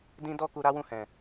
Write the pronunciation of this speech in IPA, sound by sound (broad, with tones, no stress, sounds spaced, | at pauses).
d ĩ˦ d ɔ˦ k u˧ ɾ a˦ w ũ˦˨ h ɛ̃˨